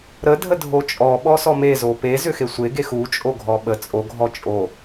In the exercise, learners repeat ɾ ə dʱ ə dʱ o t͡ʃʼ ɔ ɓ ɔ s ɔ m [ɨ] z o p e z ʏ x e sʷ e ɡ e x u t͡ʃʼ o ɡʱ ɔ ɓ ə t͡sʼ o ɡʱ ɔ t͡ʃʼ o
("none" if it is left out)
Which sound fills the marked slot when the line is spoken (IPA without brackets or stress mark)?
e